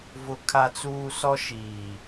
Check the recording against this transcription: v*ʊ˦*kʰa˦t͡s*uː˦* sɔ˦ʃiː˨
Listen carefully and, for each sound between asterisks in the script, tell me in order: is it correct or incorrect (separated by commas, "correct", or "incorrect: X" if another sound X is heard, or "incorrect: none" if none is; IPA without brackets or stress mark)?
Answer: correct, correct